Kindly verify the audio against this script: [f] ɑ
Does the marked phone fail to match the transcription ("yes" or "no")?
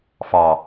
no